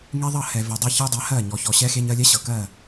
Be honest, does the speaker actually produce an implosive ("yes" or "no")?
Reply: no